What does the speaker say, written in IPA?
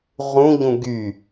ʁ ũ ʎ ũ ɡ y

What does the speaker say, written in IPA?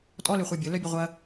tʼ ɔ l ʏ χʷ œ bʲ ʊ l œ bʲ ʊ ʁʷ ɐ

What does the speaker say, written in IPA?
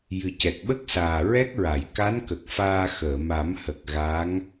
j ɨ˨˩ c ɛ˨˩ k̚ ɓ ə˦˥ k̚ s aː˨˩ ɹ ɛ˦˥ k̚ ɹ a˨˩˨ j k a˧˥ n k ə˨˩ k̚ f aː˧ x əː˨˩˨ m a˨˩˦ m h ə˨˩ k̚ ɣ a˧˥ ŋ

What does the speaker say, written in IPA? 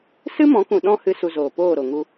s ɨ˦ m ɔ̃˨˦ k ũ˨ ɗ ɔ̃˦ h ɨ˧ s u˨ z oː˨ p oː˦˨ ɾ o˨ ŋ u˧

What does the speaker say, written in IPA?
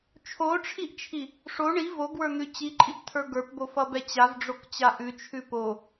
t͡ʃʰ o ʈ͡ʂʰ i ʔ t͡ʃʰ i | ʂ o ɳ i v o ɡ w ə˞ n̪ ʉ t͡ɕ i ǃʼ i p tʰ ə˞ ɡ ə˞ p b o f ʌ b ɛ t͡ɕ a v ɖ͡ʐ o k t͡ɕ a ʔ ʉ t͡ʃʰ ʉ p o

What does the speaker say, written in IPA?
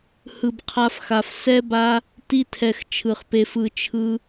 h ɯ˨ b qʰ a˧ f x a˨ f s ɛ˦ b a˦ | t i˧ tʰ ɛ˨ x t͡ʃʰ ɯ˨ χ p e˧ f ɯ˧ t͡ʃʰ ɯ˦

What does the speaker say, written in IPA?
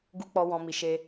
ɡ u˧ k͡p ɔ˧ w ɔ̃˧ m i˧ ʃ e˧

